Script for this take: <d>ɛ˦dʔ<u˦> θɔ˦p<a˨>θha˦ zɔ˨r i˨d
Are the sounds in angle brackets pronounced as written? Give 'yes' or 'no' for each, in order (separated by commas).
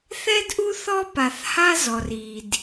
no, yes, yes